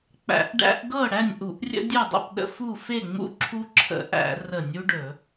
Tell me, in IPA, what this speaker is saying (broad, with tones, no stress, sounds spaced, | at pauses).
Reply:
k͡p æ̰˧˩˧ ʔ ɖ æ̰˦ ʔ ɡ ɤ˥˨ ɽ æ˥˨ nʲ ʔ u˧˩˧ ʔ rʲ ə̰˦ dʲ ɵ˥˨ dˤ ə̰˥˨ p ɗ ə̰˦ f u˥˨ f e˥˨ ŋ͡m ṵ˦ ǁʰ u˦ ǁʰ ə̰˧˩˧ ʔ æ̰˧˩˧ r ə˧˩˧ nʲ u˦ ɖ ɵ˧˩˧